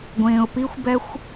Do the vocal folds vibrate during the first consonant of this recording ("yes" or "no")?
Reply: yes